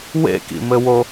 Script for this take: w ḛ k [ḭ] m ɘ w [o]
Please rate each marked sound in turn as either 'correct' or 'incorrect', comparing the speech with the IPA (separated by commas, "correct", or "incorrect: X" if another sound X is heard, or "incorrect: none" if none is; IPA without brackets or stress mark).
correct, correct